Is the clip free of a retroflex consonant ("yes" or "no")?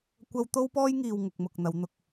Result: yes